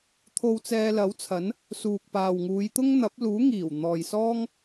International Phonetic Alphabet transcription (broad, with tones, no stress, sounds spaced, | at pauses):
t̪ʰ o˧ w t͡s ɛː˧ l ɐ˨˥ w t͡sʰ ɐ˨˥ n | s uː˨ k̚ p aː˨ w ŋ uː˨˧ j t̪ ʊ˥ ŋ n̪ ɐ˨˥ p̚ l uː˨˥ ŋ iː˨˩ w n̪ ɔː˨ j s ɔː˥ ŋ